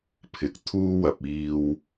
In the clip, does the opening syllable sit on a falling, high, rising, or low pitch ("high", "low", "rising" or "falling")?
low